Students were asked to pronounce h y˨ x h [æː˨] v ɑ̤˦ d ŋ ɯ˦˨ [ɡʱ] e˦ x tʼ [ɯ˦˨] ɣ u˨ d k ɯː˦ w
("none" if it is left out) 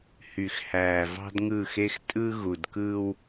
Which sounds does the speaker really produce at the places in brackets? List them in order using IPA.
æː˨, x, ɯ˦

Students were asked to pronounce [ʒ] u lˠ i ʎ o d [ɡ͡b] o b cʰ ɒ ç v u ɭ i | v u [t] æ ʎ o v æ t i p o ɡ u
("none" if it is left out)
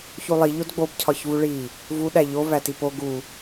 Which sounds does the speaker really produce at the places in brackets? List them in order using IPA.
ç, ɡ͡b, ɗ

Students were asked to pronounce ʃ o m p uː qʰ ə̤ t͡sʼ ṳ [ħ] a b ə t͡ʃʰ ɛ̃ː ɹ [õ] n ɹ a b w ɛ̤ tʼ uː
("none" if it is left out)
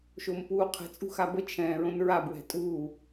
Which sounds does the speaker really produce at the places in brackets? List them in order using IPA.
x, õ

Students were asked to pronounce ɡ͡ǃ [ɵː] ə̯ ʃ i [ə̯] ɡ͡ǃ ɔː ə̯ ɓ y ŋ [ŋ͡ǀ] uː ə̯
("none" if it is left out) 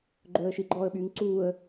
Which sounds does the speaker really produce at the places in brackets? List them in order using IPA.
ɵː, none, ǀ

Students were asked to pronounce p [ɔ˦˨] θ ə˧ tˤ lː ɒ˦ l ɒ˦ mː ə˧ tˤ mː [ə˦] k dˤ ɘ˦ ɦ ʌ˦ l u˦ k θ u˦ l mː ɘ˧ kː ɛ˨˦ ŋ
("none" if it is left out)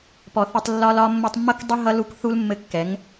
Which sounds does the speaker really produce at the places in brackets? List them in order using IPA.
ɔ˨, ʌ˦

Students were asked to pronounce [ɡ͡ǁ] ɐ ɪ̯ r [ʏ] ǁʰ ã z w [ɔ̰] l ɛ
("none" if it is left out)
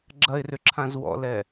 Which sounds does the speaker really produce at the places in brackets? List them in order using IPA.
ɡ͡ǁ, ʏ, ɔ̰

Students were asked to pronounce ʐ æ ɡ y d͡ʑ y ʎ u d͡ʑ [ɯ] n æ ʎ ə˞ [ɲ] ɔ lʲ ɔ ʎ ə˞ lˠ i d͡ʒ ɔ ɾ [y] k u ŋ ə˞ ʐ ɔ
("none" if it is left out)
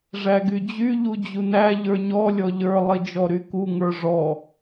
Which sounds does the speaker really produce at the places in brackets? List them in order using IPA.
u, ɲ, y

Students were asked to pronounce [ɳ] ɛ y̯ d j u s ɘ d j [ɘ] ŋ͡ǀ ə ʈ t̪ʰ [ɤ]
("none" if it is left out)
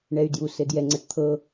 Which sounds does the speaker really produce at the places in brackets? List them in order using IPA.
ɳ, ɛ, ɤ

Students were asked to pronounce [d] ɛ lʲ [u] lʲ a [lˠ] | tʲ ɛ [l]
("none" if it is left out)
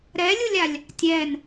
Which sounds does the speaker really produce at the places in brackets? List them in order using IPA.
ɾ, u, lʲ, n

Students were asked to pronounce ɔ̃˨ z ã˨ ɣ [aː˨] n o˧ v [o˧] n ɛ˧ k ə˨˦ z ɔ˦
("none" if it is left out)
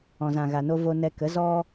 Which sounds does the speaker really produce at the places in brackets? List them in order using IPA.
a˨, o˧

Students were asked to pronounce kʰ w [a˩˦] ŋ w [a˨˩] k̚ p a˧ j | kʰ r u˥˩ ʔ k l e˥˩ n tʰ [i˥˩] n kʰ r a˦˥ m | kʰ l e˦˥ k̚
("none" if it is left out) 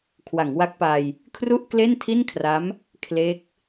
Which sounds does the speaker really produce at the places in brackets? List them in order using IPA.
a˩˦, a˦˥, i˥˩

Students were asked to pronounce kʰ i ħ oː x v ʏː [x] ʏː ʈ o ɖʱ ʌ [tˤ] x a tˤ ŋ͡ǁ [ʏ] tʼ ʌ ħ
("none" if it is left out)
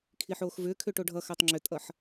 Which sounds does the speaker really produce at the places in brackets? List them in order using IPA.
kʰ, none, ʏ

